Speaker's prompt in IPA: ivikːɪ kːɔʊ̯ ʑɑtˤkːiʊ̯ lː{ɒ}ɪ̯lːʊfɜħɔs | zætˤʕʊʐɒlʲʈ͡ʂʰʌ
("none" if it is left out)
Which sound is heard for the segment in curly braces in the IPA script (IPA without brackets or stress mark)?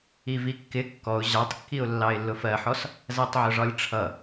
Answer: ɑ